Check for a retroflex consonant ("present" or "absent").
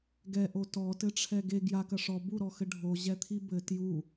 present